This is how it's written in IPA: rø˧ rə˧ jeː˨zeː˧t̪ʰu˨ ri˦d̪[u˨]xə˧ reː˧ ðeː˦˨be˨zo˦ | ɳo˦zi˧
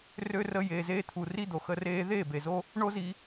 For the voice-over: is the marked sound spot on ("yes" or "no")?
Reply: no